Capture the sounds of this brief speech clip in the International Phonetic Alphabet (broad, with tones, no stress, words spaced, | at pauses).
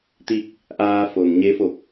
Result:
t̪i˥˨k̚ | ʔaː˧ fo˩n ɲe˧˥fo˧˩k̚